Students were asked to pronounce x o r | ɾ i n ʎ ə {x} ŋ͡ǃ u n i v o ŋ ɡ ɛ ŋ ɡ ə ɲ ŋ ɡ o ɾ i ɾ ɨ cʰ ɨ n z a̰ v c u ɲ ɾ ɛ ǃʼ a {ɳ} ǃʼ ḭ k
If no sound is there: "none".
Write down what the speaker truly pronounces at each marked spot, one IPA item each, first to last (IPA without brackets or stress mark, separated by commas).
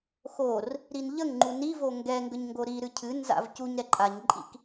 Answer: ŋ, ɲ